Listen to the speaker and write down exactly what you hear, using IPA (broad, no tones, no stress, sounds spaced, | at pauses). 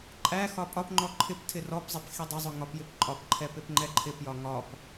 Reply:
ǃʼ æ x ɒ pʼ ɒ p ŋ͡ǃ ɔ ǃʰ ɪ p tʰ ɪ r ɔ p zˤ ɛ p x i dˤ ɪ zˤ ʊ ŋ ɒ p j ɪ p ǃʼ ɒ p ǃʰ ɛ p ɪ p ŋ͡ǃ ɛ ǃʰ ɪ p j ɒ ŋ ɒ p